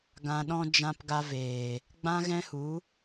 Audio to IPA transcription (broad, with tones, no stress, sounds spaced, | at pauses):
ɡ ã˧ ɗ ɔ̃˦ d͡ʒ ã˧ p ɡ a˧ v eː˨ | ɡ͡b ã˦ ɣ ɛ̃˦ h u˨˦